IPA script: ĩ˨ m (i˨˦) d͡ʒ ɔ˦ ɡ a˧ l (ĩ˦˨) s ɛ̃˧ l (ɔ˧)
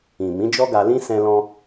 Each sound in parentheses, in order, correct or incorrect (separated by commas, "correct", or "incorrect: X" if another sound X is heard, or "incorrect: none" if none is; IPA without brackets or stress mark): incorrect: ĩ˨˦, incorrect: ĩ˦, incorrect: ɔ̃˧